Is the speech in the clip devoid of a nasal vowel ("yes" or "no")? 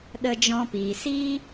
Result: no